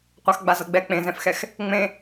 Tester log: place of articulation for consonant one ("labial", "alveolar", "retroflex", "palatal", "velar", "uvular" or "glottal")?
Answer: uvular